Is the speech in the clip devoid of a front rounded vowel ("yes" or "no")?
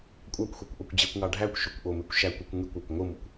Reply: no